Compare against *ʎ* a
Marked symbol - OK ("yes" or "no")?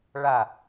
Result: no